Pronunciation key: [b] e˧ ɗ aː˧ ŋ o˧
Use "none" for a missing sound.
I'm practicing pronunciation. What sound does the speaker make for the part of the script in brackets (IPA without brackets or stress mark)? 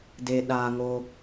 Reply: d